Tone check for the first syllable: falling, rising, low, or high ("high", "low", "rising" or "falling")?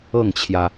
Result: falling